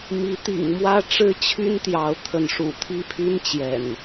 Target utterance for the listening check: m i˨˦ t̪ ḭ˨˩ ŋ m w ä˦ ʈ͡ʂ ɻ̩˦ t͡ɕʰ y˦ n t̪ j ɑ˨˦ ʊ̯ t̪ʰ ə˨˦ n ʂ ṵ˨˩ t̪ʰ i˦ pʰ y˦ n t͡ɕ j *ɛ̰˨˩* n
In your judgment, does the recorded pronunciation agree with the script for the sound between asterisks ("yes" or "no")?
yes